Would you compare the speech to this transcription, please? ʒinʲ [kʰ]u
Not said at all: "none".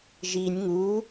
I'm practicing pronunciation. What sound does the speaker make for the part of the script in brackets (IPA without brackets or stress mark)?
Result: ŋ